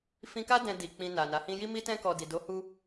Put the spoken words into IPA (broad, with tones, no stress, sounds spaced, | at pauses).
f ĩ˧ k a˦ d ɛ̃˧ d i˨ k͡p ĩ˧ n a˨ n a˨˦ h ĩ˦ j i˦ m i˦ t ɛ̃˦ k ɔ˧ d i˨ d o˨˦ h u˧